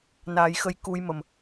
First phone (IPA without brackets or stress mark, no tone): n